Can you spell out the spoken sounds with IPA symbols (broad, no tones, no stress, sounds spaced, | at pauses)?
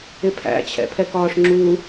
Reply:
ɪ pʰ æ̰ t͡ɕʰ ɛ̰ pʰ ɛ k ɒː ʂ ŋ͡ǁ u